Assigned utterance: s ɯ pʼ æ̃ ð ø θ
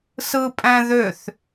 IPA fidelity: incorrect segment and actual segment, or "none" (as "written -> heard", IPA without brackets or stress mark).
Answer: none